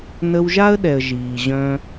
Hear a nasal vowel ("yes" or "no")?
yes